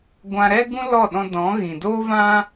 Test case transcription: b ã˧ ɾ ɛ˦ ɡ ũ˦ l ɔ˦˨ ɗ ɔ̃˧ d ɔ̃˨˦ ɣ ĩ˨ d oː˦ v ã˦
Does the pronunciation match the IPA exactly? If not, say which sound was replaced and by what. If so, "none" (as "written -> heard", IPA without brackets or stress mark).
b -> ɡʷ